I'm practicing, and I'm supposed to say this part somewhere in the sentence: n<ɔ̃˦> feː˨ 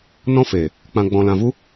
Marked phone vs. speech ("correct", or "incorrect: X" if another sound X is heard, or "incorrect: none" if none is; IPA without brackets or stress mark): correct